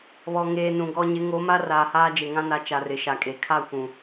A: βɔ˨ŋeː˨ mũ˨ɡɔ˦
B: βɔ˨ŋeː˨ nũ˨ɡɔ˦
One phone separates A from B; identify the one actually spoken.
B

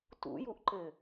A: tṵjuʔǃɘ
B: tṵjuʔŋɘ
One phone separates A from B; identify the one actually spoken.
A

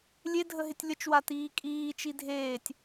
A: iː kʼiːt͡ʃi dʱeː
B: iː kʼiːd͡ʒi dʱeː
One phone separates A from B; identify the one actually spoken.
A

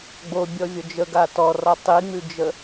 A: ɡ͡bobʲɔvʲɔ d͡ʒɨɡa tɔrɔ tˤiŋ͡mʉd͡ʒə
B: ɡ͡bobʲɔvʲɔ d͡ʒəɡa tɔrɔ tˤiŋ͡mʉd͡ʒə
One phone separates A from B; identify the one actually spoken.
B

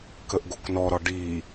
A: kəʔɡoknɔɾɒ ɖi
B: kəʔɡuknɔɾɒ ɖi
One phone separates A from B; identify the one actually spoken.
A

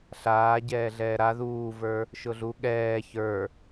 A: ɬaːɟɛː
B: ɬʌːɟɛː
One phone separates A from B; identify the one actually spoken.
A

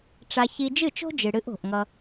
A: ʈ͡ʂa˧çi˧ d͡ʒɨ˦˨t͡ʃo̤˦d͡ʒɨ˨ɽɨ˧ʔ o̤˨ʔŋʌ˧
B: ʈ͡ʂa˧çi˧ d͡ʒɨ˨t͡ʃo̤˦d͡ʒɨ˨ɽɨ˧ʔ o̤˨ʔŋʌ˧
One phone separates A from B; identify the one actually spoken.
A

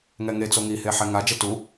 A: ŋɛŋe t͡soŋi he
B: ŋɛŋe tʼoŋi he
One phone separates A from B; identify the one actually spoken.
A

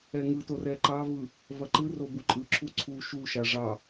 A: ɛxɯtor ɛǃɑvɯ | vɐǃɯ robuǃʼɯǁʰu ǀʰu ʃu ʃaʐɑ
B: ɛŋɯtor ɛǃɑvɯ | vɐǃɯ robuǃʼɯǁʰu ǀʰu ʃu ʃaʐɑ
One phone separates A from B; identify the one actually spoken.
B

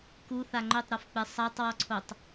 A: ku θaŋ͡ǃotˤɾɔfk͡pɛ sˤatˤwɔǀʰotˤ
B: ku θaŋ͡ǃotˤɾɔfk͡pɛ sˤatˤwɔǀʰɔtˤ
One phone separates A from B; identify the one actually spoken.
A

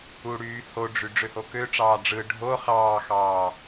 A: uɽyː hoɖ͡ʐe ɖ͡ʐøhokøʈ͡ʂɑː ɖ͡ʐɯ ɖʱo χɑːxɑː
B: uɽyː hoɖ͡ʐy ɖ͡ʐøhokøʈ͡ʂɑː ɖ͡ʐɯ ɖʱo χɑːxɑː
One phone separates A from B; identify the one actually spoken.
B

